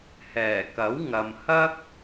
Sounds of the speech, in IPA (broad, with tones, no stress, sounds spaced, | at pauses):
h ɛː˨˩ k ɐ˨˥ w ŋ ɐ˨ m h ɐ˥ k̚